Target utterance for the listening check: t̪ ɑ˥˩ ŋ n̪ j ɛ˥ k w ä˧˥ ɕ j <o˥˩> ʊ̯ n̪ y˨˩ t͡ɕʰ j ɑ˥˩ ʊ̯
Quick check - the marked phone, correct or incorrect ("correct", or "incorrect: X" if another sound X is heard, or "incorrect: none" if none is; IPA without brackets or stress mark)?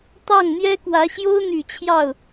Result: incorrect: o˥